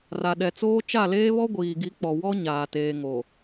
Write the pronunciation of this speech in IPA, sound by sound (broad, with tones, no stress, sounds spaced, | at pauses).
r a˨ ɗ ɛ˨ t͡s oː˦ t͡ʃ a˦˨ l eː˦ β ɔ˦ ɡʷ iː˨ ɡ i˨˦ k͡p ɔ˨ w ɔ˦ ɲ aː˨ t eː˨ ŋ o˨